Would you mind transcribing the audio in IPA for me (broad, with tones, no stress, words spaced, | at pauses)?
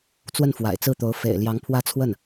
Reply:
t͡swə˥˩nfwa̰˨˩ɪ̯t͡sɹ̩˥˩t̪o˧˥ʊ̯ fḛ˨˩ɪ̯ljɑ˧˥ŋpʰwä˥˧t͡sʰwə˥˩n